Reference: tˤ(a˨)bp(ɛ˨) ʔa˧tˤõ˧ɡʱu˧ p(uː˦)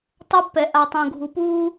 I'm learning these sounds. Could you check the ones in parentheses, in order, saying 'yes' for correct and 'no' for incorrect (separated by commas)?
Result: no, yes, yes